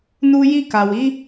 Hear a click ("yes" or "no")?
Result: no